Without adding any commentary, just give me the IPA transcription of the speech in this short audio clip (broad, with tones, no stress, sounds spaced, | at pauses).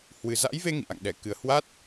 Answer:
h w ɨ˨˩ z a̰˧˥ j v e˧ ŋ ḭ˧˨ ʔ a̰˧˨ ŋ ɗ ɛ˧˩ k ɨ˨˩ ə̯ h w a˦˥ t̚